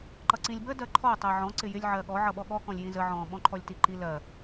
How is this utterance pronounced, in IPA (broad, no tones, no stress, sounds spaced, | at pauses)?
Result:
ǃ ʌ ǀ ĩ lʲ b ə d ɜ ǃʰ ɔ tˤ ɜ ʕ ɔ̃ ǀ ɪ j ɪ lʲ ʕ ɜ ɠ ɔ ʕ ʌ ɓ ɔ ɠ ɔ k ɔ̃ lʲ j ĩ z ə ʕ ɔ̃ ɓ ɔ̃ ǃʰ ɔ lʲ t i ǃ i l ɜ